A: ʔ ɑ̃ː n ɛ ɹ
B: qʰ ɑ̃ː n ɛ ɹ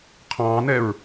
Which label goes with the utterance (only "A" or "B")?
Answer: B